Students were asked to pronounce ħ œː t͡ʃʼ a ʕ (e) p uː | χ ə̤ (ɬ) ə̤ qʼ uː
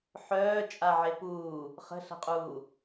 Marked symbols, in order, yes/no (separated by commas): yes, yes